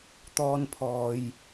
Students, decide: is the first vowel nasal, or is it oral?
oral